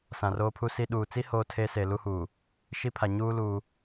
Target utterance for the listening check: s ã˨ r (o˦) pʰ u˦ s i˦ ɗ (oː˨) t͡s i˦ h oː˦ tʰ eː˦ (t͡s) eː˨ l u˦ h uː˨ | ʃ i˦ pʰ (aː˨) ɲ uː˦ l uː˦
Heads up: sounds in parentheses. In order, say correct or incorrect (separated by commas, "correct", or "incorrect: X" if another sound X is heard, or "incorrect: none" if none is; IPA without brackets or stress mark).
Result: incorrect: oː˦, incorrect: uː˨, incorrect: s, incorrect: a˨